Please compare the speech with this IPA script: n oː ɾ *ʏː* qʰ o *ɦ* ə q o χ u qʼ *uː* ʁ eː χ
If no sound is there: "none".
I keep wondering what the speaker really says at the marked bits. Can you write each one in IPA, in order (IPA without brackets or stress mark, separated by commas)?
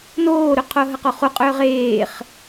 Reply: ʏ, ɦ, ʏː